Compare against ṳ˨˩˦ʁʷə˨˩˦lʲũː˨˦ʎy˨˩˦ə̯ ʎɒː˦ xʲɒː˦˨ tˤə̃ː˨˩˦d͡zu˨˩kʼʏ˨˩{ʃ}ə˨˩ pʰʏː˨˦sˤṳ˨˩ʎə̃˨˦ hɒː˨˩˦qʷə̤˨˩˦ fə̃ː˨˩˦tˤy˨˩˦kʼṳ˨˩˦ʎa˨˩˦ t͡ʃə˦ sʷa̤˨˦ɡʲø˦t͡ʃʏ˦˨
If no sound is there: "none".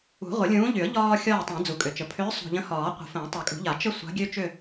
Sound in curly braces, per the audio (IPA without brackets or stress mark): t͡ʃ